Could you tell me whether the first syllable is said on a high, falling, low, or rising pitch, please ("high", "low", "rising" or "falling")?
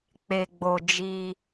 low